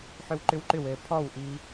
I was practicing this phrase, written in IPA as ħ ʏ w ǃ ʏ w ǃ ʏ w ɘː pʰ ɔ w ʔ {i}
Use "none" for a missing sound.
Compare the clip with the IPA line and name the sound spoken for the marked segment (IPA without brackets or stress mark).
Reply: iː